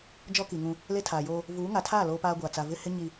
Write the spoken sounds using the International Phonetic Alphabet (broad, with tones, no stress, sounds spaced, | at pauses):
d͡ʒ ɔ˦ k i˨ ŋ ũ˦ | l e˦ tʰ aː˨ j oː˦ | v uː˨˦ ŋ a˨ tʰ aː˦˨ l oː˦ p aː˦ ɡʷ aː˨ t͡s a˦ v ɪ˦ h ɪ˦ ɲ i˨